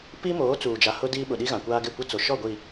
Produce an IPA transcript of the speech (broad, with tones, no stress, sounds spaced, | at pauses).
p i˦ m oː˨˦ t͡s uː˨ d͡ʒ a˨ h ʊ˦ d iː˦ ɓ ʊ˨ ɗ i˦ ɣ ã˨ kʷ aː˦ ɡ ɪ˦˨ kʷ e˦ t͡s o˨ ʃ ɔ˦˨ ɡʷ i˨